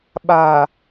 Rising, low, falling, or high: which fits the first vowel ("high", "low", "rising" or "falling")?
low